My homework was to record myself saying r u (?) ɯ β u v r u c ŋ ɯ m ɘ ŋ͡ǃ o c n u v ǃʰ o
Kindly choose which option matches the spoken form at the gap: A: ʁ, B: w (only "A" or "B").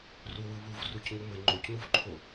B